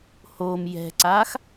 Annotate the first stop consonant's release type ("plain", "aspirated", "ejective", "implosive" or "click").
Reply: click